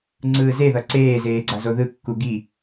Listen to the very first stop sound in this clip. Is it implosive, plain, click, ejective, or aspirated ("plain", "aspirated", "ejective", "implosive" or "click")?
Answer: click